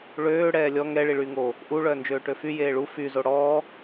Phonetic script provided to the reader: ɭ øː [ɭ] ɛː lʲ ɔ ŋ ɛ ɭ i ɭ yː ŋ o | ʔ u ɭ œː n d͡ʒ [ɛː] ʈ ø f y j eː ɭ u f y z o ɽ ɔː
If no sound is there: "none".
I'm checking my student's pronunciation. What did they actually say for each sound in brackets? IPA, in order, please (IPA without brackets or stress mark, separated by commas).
ɽ, øː